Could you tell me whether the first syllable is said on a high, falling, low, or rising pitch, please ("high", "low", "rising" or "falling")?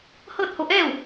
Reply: falling